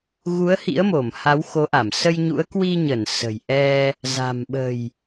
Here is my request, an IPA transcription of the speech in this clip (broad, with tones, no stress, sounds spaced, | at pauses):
ɣ u˨˦ ə̯ h ḭ˧˥ ə̯ m o˧˩ m h a˨˦ w x o˨˦ ʔ a˧˩ m s ə˧ j ɲ ṵ˧˥ ə̯ k w i˧ ɲ ə˧˩ n s ə̤˨˩ j ʔ ɛ˧ | z a̤˨˩ m ɓ ə̤˨˩ j